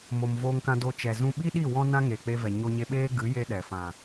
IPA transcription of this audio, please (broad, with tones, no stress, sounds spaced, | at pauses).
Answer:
m o˨ m v oː˧ ŋ k ã˧ d o˧ t͡ʃ ɛ˨ z ũ˧ ɓ i˦ ɗ i˦˨ w ɔ̃˦ n ã˦ ŋ eː˨ k͡p e˧ v ɛ˨ ɲ o˧ ɲ e˧ ɓ eː˦ ɡ ɨ˨˦ j e˦ ɗ ɛ˨ f ã˨